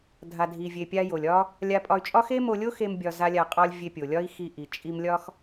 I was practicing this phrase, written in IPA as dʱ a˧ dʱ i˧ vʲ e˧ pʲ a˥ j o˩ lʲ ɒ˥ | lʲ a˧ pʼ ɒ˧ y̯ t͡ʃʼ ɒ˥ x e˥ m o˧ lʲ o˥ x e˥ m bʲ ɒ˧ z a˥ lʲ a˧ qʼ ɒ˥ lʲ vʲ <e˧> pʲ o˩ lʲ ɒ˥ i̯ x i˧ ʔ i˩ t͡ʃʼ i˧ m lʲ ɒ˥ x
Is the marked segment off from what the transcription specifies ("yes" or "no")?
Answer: no